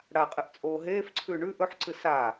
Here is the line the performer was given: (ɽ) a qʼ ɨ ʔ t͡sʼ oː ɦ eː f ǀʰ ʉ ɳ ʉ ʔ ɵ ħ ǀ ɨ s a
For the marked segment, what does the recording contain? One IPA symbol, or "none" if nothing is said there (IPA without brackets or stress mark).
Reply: ɽ